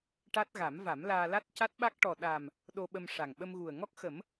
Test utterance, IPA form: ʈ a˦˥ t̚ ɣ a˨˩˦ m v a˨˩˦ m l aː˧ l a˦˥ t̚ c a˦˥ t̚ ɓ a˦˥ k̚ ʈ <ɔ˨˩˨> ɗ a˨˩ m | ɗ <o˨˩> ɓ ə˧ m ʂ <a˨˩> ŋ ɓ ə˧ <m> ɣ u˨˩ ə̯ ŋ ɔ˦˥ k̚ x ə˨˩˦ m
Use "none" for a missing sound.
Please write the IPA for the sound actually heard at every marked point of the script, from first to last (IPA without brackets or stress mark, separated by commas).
ɔ˨˩, o˧, a˨˩, m